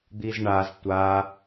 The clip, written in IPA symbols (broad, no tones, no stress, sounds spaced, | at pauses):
d̪ i z ɳ a z tʷ a